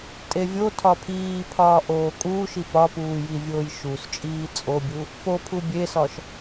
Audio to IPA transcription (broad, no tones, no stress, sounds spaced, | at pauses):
tʼ e vʲ o tʰ ɒ pʰ iː pʰ ɒː ʔ oː kʼ uː ʃ i p ɒ p uː j i vʲ oː j ʃ u s t͡ʃʼ iː t͡sʼ o bʲ u | p o pʰ u bʲ e s ɒ ʃ